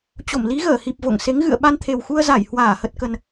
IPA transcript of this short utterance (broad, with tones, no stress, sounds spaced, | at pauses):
t͡ɕ o˧˩ m l i˨˦ ɣ əː˧˩ h i˨˩ p̚ v o̰˧˨ ŋ s e˨˦ ŋ ɣ ɨ̰˧˨ ə̯ ɓ a˧ n t̪ʰ e˨˩ w x u˧ ə̯ z a˧˩ j h w aː˧˩ h ə˨˩ t̚ k ə˨˩ n